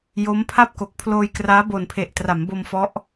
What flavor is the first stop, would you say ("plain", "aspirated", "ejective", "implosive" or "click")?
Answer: aspirated